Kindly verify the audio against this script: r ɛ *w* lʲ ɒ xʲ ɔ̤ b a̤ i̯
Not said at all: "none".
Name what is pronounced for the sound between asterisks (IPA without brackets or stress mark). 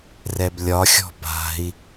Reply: b